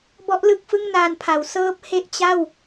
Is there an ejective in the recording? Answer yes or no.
no